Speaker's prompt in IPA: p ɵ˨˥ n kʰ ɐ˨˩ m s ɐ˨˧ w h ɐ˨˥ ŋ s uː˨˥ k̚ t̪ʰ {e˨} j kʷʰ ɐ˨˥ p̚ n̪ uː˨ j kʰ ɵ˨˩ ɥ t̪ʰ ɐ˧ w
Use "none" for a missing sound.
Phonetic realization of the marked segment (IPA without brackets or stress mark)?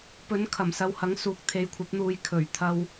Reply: e˨